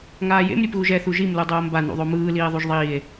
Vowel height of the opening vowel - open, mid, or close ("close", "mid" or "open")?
open